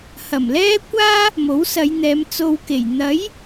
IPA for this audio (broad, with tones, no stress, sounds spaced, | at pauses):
h ɐ˨˩ m l ɛː˥ kʷ aː˥ | m o˨˥ w s ɐ˨˧ j n̪ ɛː˨˧ m t͡s o˧ w k e˨˩ j n̪ ɐ˨˥ j